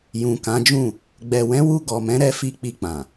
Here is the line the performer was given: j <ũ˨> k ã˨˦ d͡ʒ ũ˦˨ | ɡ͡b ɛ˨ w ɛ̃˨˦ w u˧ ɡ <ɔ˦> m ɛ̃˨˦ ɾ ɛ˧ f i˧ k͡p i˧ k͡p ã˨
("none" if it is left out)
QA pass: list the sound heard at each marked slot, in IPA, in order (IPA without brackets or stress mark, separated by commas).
ũ˨, ɔ˨